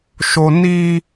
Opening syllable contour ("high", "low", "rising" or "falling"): high